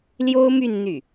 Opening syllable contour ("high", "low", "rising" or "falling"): high